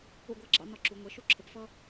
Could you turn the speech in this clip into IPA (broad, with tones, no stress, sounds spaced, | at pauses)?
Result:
ṵ˥˩ ɡʷ æ˥˩ ɡ͡ǁ ɑ̰˩˥ n ɒ˧ ǁ u˩˥ ŋʷ ɛ˩˥ ʃ u˥ ǁʰ ə˩˥ p f ʌ˥